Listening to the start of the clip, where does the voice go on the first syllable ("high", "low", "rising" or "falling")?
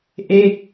falling